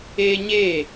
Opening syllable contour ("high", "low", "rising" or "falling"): high